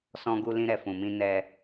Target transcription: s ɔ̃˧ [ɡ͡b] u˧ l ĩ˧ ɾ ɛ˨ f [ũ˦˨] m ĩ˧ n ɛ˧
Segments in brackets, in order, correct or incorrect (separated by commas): incorrect, incorrect